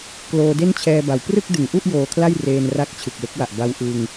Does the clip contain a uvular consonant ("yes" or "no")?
no